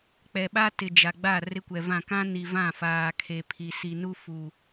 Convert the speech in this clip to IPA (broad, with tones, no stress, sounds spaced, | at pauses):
k͡p ɛ˨ ɓ a˦ t ɪ˨ d͡ʒ a˨ ɡ͡b a˦˨ r ɪ˦ kʷ ɛ˨ v ã˦˨ k ã˦ n i˨ v ã˦˨ f aː˨ kʰ e˨ pʰ i˨ s i˨ n u˦ f u˨